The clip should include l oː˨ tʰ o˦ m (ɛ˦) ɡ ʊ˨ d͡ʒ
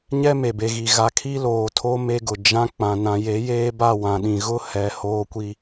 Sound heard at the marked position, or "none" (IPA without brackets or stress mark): e˦